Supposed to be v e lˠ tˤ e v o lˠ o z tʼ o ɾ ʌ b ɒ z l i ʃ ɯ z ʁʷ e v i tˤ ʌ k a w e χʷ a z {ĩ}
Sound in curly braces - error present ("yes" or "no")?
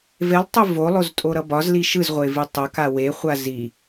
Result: yes